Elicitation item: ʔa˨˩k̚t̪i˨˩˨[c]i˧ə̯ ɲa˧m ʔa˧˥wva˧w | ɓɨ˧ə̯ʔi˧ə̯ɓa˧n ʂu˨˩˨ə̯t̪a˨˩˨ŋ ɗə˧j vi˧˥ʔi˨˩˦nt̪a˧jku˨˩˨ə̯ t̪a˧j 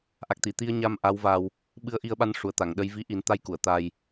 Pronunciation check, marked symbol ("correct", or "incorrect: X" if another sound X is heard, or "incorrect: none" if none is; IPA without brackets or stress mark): incorrect: t̪